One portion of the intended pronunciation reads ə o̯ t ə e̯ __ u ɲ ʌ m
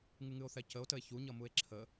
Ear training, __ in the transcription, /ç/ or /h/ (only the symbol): ç